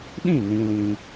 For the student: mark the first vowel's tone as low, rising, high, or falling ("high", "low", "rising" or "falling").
falling